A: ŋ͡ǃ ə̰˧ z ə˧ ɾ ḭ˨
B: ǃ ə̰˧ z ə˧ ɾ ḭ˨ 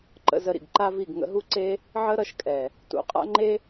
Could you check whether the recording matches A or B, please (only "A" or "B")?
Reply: B